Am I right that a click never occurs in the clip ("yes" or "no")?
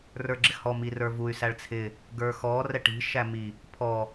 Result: no